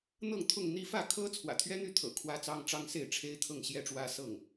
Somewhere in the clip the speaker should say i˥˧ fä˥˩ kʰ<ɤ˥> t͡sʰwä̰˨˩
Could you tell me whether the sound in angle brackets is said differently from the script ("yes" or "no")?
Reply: no